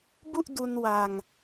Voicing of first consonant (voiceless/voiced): voiced